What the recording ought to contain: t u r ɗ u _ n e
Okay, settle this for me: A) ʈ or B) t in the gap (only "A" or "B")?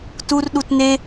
B